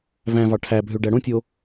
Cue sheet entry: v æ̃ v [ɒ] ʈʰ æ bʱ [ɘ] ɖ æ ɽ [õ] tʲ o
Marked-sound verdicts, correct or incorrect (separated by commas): incorrect, incorrect, correct